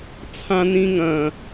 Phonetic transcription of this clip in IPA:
t͡sʰ ã n ĩ ŋ ɐ̃

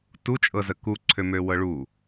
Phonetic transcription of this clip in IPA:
t u t͡ʃʼ ɤ z ə k u ǀʰ ø m ø w ɤ ɭ u

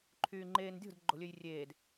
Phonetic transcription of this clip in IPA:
ǃʰ yː ŋ͡ǃ eː n dʲ o̤ d ɡ͡ǃ o̤ lʲ ø j rʲ eː d

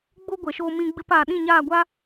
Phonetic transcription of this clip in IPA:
ɡ͡b o˦ ɡʷ ɛ˨ ʃ o˧ m ĩ˧ ɡ͡b ɨ˧ p a˨ ɗ ĩ˦˨ ɲ aː˦˨ ɡʷ a˦

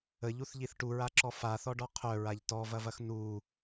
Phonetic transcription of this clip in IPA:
ə ʎ u θ ʎ i θ ʈ u ɹ a ǁ ɔ f a θ ɔ ɖ ɔ qʰ œ ɹ a ʎ t ɔ v ɐ v ɐ x n u

